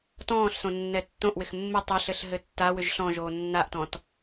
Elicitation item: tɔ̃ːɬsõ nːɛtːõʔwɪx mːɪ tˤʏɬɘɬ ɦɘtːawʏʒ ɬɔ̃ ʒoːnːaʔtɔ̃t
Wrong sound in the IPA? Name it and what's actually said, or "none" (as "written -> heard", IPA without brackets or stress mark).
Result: none